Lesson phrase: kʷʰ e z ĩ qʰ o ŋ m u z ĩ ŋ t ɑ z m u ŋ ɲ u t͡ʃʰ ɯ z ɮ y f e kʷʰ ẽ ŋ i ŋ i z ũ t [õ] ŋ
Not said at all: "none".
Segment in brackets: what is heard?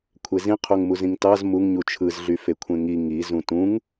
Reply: ũ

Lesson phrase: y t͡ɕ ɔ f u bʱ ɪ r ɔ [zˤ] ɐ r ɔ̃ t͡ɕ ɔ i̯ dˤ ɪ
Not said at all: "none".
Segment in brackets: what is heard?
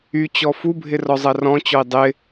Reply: zˤ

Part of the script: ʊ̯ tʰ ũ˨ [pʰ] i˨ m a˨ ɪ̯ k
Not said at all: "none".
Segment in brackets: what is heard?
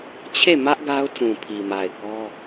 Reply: pʰ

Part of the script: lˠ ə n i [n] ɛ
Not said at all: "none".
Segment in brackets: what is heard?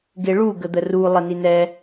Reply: n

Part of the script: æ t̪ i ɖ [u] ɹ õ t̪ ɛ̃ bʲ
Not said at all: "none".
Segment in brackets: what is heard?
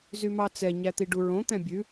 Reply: u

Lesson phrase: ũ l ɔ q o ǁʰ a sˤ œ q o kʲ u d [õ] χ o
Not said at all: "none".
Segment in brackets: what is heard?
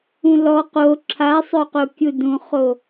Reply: ũ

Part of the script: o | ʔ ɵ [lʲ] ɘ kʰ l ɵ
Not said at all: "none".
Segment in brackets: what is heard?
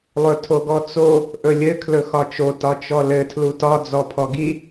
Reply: lʲ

